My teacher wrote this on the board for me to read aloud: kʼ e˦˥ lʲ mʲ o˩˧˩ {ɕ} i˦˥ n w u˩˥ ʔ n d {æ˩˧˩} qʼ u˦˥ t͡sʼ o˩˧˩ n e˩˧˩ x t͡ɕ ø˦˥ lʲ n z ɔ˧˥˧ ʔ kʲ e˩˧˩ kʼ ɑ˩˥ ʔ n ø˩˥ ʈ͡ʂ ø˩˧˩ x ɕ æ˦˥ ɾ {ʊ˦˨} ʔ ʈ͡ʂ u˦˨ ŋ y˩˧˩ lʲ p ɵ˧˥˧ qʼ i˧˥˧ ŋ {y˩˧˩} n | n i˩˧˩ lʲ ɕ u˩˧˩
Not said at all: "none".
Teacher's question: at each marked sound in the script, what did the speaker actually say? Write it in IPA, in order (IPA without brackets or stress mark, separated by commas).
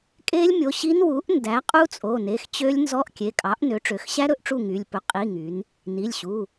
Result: ɕ, æ˩˥, ɵ˦˨, y˩˥